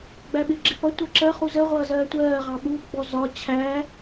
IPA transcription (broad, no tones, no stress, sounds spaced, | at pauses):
ɡ͡b æ ɓ ɪ ɡ͡ǁ ɪ p ʌ tʷ ɜ ǁ ɜ χ u z ə ʁʷ ʌː z ɜː tʷ ɜː ʁ ɑ ɓ uː p ɡ͡b ɔ z ɒ t͡ɕʰ æ